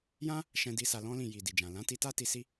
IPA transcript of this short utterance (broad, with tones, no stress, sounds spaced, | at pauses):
j ã˦ | ʃ ɛ̃˧ d i˧ s a˧ l ɔ̃˦ l ĩ˦˨ j i˨ d i˨ d͡ʒ ã˨ l ã˨˦ t i˧ t a˦ t i˧ s i˦